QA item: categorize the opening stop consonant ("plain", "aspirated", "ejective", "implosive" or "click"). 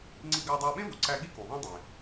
click